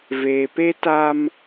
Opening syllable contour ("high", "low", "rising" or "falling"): low